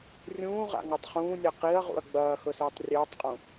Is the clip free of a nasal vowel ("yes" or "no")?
no